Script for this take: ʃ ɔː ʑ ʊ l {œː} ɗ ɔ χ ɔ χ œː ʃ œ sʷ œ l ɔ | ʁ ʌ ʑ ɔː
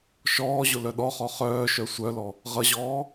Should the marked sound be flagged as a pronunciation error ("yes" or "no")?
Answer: yes